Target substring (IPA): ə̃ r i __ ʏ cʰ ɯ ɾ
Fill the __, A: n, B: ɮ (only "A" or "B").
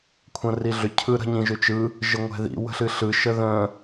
B